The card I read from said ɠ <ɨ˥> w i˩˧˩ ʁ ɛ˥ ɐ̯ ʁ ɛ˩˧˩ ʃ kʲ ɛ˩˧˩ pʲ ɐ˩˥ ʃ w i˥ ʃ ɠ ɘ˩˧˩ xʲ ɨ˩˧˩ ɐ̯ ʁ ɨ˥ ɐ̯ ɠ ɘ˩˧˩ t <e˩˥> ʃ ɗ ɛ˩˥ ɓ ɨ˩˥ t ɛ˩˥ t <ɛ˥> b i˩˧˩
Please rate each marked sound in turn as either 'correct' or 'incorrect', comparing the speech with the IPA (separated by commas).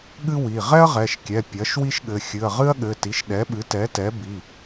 correct, incorrect, incorrect